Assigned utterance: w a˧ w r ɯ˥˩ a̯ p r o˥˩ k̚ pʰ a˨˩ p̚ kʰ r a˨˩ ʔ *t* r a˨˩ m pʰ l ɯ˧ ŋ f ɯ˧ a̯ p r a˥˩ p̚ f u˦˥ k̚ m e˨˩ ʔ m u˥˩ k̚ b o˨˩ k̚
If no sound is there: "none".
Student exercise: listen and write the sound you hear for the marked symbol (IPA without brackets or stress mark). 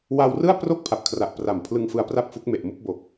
p